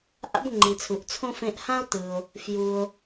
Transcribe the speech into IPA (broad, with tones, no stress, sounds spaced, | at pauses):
ʔ a̰˥ b ŋ͡ǃ i˩ t͡sʰ u˩ ʔ t͡sʰ õ˥ f ẽ˧ ʔ h ã˥ o̯ t ɯ˩ o̯ | f j u˩ o̯